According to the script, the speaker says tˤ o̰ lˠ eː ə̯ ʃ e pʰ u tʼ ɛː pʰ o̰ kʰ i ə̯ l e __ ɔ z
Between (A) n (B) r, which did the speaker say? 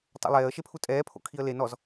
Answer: A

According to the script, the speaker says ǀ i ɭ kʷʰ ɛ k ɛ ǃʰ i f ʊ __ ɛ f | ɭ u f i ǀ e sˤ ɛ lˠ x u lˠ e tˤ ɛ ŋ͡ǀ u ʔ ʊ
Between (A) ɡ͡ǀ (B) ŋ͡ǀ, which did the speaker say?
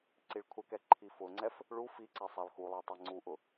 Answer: B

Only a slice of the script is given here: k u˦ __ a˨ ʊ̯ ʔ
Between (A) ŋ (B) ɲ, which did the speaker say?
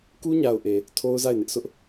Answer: B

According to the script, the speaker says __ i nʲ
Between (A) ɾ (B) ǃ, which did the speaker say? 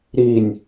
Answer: A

